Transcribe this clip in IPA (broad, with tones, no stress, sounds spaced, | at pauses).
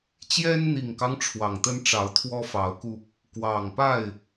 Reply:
t͡ɕ j ɛ˦ n n̪ i˨˩ ŋ k ɑ˦ ŋ ʈ͡ʂʰ w ɑ˨˩ ŋ t̪ ə˦ n ʈ͡ʂ ɑ˨˦ ʊ̯ t̪ʰ w ɔ˦ f ɑ˨˦ ʊ̯ k u˧ | k w ɑ˨˩ ŋ p a˥˨ ɪ̯